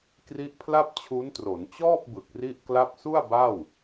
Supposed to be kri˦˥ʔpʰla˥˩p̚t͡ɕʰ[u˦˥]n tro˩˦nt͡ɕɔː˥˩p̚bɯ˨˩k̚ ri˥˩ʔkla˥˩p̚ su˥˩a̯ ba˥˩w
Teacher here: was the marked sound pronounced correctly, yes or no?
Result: yes